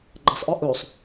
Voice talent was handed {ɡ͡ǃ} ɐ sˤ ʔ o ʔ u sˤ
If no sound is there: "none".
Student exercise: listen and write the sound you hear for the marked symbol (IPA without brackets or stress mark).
ɡ͡ǃ